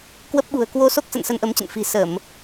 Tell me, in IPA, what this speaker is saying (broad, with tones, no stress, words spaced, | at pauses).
kwə˦˥p̚ɓṳ˨˩ə̯ kwo˧ so˦˥k̚ sə̰˧˨nsə˧nʔə˨˦mt͡ɕə̰˧˨n fi̤˨˩sə˧˩˨m